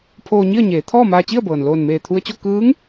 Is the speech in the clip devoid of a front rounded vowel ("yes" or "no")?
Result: yes